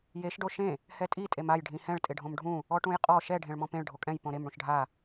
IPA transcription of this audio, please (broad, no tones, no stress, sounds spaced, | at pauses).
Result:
j e ʃ ɖ o ʃ ẽ | h ɛ tʼ i tʼ e m a j ɖʱ ĩ h ɛ̃ ɭ tʼ ɪ ɖʱ õ m ɖʱ ũ | ɔ ʈ ũ j qʼ ɔ ʃ ɛ ɖʱ ẽ ɭ m ɔ̃ p ẽ ɭ ɖʱ o kʼ ɛ̃ j p õ ɾ e m ɽ ũ ʃ ɖʱ a